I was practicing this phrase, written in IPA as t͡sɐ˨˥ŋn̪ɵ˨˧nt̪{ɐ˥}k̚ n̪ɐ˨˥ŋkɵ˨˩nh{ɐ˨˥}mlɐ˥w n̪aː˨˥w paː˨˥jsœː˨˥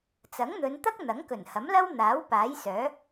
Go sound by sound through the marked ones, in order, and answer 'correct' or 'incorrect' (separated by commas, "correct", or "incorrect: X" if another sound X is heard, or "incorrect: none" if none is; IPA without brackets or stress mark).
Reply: correct, correct